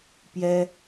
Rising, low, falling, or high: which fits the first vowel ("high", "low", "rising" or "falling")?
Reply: high